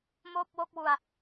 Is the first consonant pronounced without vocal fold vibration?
no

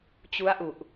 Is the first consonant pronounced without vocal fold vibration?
yes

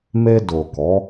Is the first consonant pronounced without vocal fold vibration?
no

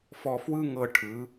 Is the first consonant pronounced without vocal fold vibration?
yes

